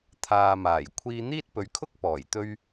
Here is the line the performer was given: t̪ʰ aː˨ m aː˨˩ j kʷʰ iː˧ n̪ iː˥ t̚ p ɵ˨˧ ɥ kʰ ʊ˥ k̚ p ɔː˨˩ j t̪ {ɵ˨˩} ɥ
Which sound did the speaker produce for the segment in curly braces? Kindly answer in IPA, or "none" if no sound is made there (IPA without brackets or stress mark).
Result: ɵ˧